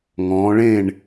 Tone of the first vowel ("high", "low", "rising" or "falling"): rising